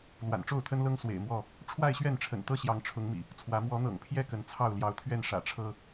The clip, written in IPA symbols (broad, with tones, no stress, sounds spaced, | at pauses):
l w a̰˨˩ n ʈ͡ʂ o˥˨ ʊ̯ t̪ʰ ə˦ n l ɤ˦ ŋ s w ḛ˨˩ ɪ̯ m w ɔ˥˨ | ʈ͡ʂʰ w a˥˨ ɪ̯ ɕ ɥ ɛ˥˨ n ʈ͡ʂʰ ə̰˨˩ n t̪ ɤ˦ ɕ j ɑ˨˦ ŋ ʈ͡ʂʰ ʊ˨˦ ŋ m ḭ˨˩ | t͡sʰ w ä˨˦ m w ɔ˨˦ n̪ ɤ̰˨˩ ŋ pʰ j ɛ˥˨ k ə˨˦ n t͡sʰ ɑ˥˨ ʊ̯ l j ɑ˨˦ ʊ̯ t̪ʰ ɥ ɛ˥˨ n ʂ ä̰˨˩ ʈ͡ʂʰ ɤ˦